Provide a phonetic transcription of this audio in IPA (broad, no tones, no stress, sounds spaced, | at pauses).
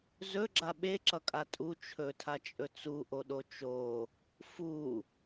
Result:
z ɵ ɡ͡ǁ a ɓ e ǁ ʌ kʼ a tʼ u t͡ʃʰ ɵ tʰ a t͡ʃʼ ɵ t͡s u ʔ o ɗ o t͡ʃ o | f u